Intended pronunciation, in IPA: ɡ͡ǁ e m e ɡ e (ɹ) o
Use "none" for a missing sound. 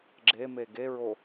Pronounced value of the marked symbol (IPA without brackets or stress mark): ɹ